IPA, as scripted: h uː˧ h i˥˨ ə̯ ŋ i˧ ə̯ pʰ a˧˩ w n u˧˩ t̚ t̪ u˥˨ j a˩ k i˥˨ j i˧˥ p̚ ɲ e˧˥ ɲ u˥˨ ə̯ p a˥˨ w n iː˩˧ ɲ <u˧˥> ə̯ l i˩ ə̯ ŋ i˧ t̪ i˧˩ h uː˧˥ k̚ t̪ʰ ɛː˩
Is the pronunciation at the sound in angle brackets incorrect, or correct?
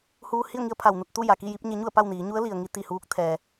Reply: correct